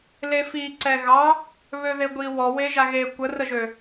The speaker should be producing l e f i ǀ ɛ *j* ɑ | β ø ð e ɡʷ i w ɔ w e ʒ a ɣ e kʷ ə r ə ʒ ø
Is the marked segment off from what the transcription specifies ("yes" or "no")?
yes